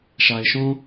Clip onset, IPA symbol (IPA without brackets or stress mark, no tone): ʃ